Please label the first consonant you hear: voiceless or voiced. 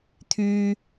voiceless